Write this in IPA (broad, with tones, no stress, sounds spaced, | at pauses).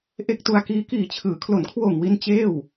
ʔ e˦˥ k̚ t u˧ a̯ k iː˦˥ k iː˨˩ t͡ɕʰ ɯː˩˦ kʰ l o˩˦ n kʰ w oː˨˩ ŋ w i˧ n t͡ɕ eː˥˩ w